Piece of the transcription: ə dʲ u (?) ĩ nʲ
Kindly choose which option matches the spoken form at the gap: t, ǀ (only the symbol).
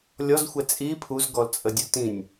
t